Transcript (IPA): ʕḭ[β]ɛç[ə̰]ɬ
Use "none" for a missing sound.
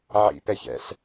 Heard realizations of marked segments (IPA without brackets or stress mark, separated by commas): p, ɛ̰